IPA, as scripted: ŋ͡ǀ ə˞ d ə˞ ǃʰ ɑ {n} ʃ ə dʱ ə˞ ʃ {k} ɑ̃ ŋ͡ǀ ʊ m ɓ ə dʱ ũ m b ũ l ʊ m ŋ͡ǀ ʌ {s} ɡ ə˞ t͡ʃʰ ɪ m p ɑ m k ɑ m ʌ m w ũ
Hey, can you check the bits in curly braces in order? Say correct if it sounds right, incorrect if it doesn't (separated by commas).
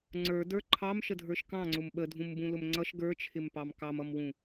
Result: incorrect, correct, incorrect